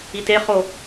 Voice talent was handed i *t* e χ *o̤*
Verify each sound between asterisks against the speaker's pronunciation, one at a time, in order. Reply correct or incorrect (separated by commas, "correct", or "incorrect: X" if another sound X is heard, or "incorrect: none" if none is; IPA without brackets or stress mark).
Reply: correct, incorrect: o